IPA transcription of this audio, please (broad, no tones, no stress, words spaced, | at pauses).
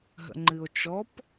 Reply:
ɦə̰ŋ͡ǃɨo̯t͡ʃɔp